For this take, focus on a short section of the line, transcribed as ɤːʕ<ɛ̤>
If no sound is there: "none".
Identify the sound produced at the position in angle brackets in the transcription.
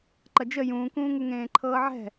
ɛ̤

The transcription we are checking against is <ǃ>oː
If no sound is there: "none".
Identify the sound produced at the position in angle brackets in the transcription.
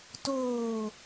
t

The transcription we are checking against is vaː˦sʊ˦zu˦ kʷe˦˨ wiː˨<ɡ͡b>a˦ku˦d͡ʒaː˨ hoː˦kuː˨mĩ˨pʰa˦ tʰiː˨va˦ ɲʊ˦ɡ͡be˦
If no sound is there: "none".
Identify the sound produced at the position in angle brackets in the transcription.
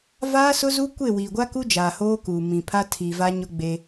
ɡʷ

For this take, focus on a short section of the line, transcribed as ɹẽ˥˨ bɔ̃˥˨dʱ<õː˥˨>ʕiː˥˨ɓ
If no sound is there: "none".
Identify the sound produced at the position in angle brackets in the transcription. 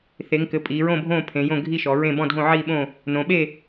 õ˥˨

